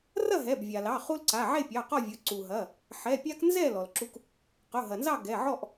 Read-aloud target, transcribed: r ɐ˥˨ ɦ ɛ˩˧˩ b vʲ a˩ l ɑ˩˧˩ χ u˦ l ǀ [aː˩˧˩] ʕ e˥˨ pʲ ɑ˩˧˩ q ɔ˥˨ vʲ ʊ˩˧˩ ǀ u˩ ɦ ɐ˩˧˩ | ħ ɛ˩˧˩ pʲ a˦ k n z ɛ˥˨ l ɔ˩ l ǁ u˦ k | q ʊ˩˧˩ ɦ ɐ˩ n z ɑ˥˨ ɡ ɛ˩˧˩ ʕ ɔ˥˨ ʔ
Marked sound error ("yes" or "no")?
yes